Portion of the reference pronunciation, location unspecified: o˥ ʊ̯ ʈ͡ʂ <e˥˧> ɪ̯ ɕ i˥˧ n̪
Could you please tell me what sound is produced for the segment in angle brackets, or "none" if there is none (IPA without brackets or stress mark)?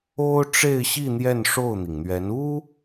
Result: e˥˧